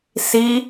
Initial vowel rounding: unrounded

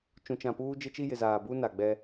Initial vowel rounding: rounded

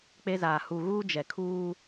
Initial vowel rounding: unrounded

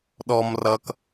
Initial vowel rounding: rounded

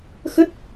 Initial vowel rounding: unrounded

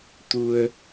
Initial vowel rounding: rounded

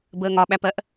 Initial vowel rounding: unrounded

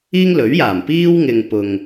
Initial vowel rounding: unrounded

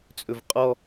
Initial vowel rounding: rounded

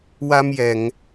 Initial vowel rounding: unrounded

